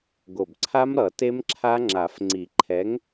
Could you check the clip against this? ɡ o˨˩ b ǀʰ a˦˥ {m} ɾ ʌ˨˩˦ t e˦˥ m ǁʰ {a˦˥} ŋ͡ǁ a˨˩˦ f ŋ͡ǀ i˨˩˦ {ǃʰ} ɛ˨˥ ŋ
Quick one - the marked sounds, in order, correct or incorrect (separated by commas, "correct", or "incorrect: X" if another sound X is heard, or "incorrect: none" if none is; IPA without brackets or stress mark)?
correct, correct, correct